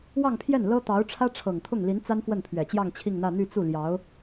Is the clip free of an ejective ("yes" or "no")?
yes